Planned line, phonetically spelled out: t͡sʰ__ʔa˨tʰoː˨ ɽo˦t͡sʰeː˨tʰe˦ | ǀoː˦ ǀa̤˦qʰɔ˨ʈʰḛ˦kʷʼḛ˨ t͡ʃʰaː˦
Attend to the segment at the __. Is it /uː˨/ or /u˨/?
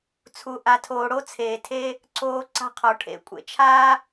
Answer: u˨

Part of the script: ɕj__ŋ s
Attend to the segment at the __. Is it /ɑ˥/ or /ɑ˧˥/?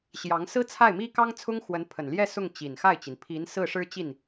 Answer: ɑ˧˥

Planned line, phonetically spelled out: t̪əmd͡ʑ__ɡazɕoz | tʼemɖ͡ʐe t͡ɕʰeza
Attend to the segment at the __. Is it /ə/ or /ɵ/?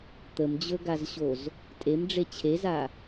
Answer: ɵ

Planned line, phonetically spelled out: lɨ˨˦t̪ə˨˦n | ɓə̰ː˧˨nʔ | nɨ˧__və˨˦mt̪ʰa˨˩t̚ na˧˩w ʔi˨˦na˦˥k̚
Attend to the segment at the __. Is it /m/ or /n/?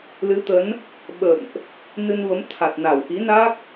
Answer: n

